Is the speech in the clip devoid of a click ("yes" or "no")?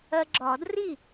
no